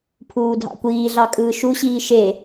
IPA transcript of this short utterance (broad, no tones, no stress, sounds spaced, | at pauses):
pʰ uː dʱ ɑ̰ kʷ iː ɮ ɑ kʼ ɯː ʃ u ɕ iː ʃ e